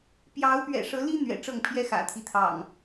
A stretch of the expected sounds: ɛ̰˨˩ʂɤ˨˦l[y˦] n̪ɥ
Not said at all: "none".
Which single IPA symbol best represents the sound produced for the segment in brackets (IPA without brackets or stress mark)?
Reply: i˦